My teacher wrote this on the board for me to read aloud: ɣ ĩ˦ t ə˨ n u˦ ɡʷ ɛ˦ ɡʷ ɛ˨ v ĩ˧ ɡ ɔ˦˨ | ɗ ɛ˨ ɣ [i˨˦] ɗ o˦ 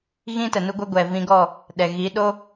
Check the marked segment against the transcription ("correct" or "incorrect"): correct